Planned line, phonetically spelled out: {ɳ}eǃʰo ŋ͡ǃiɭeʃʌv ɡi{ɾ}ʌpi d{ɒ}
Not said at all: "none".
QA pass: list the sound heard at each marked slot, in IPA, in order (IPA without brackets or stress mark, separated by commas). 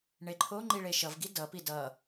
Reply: ɳ, d, ʌ